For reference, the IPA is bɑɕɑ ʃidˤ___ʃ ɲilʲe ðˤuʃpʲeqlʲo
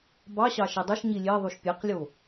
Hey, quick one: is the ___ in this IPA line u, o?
o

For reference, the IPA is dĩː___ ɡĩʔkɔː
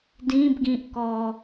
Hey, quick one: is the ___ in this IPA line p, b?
b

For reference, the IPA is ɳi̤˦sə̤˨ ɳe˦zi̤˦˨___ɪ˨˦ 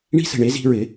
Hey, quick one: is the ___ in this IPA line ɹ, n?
ɹ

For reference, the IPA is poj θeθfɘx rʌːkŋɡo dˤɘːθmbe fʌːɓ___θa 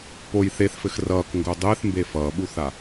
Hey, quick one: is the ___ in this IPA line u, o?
u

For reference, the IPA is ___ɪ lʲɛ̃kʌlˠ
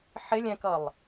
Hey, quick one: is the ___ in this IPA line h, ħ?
ħ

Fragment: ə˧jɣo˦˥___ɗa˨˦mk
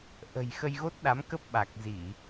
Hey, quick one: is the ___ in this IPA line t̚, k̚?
t̚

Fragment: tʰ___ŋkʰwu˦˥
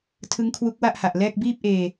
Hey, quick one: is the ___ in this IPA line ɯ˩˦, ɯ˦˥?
ɯ˦˥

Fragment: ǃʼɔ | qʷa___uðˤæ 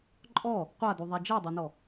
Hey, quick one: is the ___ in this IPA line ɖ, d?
d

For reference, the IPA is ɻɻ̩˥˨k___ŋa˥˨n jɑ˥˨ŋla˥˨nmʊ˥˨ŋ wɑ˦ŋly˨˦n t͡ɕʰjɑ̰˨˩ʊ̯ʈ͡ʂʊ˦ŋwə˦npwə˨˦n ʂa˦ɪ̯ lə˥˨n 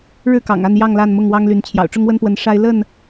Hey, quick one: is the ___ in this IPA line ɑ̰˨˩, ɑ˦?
ɑ̰˨˩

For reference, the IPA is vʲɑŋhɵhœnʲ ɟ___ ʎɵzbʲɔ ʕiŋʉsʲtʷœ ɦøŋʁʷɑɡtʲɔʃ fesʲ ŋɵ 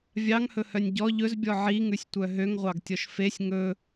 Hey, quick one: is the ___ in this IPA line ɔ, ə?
ɔ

